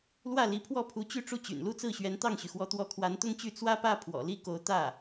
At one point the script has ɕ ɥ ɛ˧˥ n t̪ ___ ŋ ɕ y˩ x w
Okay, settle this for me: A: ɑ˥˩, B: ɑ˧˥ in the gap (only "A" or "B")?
A